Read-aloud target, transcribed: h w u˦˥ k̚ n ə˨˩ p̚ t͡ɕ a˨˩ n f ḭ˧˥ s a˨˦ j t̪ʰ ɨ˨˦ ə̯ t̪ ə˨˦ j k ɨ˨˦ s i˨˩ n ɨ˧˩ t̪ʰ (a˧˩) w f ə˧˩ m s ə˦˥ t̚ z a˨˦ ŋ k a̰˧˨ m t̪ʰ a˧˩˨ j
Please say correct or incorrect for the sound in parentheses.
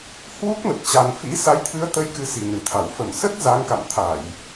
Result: correct